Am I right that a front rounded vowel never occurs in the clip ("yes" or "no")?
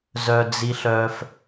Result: no